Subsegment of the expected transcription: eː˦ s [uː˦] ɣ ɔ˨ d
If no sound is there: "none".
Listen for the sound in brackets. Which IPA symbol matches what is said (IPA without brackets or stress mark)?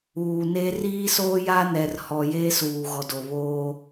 uː˨